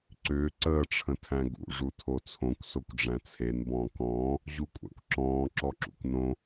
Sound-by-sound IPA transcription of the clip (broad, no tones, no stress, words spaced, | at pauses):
ǀʏː ǀəːʈ͡ʂʰə̃ tʰæ̃ɡṵʐu tʰot͡sʰõkʷ sokʷɖ͡ʐæ̃t͡sʰen bɔ̃ːkɔ̃ː | ʑukʷʼæ̰kʷǁɔ̃ː ǁɔǁṵkʷnõ